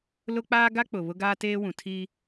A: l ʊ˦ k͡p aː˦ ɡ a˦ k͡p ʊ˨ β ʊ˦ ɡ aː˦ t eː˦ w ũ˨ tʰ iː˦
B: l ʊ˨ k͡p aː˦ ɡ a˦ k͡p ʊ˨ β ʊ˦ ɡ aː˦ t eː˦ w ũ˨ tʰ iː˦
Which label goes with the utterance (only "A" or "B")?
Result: A